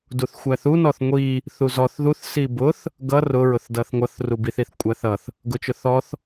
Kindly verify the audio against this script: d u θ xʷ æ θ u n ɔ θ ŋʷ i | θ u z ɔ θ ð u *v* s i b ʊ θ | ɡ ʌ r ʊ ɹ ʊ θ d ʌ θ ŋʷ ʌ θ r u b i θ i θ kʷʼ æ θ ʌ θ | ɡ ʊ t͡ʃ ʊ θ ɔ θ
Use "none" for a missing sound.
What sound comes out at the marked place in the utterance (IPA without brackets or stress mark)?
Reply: θ